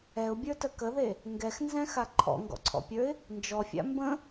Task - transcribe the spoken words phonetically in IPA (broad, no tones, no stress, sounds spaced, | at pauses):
ɛ ʊ̯ bʲ ə˞ t ə k ə ð e | ŋ ɡ ɛ x n z ɛ̃ x a ǃʰ ɔ̰ ŋ ɡ ɔ̰ ǀʰ ɔ̰ pʲ ə˞ ɪ̯ | n d͡ʒ ɔ fʲ a̰ m b ə̃